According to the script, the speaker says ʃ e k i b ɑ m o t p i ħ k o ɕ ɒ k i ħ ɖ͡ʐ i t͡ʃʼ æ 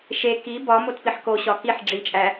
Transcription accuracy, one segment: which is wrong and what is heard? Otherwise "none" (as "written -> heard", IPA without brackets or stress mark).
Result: ɑ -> ɒ